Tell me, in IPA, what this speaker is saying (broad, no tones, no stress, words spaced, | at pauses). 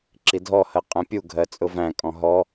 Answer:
ǁidʱɔhɜ qʼɛ̃pʲuɡʱɜ t͡sʼʊvæ̃kʼɔ̃ ɦɔ